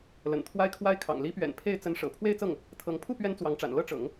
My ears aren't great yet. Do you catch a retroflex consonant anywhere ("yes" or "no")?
yes